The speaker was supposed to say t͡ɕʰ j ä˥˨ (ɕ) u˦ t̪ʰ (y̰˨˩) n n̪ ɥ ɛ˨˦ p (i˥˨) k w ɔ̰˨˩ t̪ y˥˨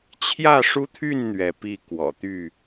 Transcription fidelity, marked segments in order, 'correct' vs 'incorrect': incorrect: ʂ, incorrect: y˥˨, correct

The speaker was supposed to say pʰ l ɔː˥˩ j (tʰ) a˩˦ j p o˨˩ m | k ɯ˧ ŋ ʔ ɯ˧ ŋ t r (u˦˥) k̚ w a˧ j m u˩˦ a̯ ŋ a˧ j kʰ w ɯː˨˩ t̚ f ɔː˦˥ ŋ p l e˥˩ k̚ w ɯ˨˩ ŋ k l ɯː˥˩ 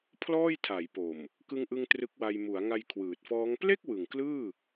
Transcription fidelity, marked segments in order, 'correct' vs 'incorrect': correct, incorrect: ɯ˦˥

